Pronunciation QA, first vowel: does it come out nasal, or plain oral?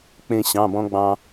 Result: nasal